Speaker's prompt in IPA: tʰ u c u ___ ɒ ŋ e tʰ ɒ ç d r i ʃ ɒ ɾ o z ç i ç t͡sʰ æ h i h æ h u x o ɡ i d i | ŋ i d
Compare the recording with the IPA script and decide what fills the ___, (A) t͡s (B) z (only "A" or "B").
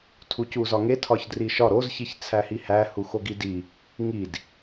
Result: B